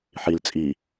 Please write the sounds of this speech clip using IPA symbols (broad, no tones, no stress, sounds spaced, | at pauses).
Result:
ħ i l t͡sʼ i